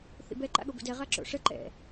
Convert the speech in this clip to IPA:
θḭbɛ ǃa̰ɠobə̰dɛ ʁaǁo̰ʂə ǃɛ̰

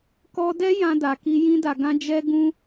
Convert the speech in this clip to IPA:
kɔ˧dɛ˦ jã˧da˨ki˧ jĩ˧da˨ ɡã˧ d͡ʒɛ˧ ɡũ˦

